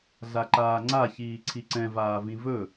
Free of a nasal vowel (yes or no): no